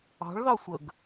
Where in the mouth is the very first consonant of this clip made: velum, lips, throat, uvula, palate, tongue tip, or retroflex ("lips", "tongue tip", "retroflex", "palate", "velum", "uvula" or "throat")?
retroflex